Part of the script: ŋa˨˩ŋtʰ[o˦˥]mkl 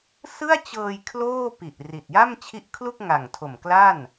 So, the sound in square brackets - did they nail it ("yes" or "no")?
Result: no